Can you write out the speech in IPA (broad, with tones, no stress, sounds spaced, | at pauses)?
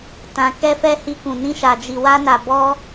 t ã˧ k ɛ˦ f ɛ˦ h i˦ k ũ˧ n ĩ˦ ʃ a˧ d͡ʒ i˧ w a˦ n a˧ b ɔ˦